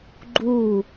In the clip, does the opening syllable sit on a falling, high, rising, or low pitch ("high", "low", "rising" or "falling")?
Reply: falling